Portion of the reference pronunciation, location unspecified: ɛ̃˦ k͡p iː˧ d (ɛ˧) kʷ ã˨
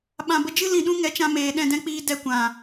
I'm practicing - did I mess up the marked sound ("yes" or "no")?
no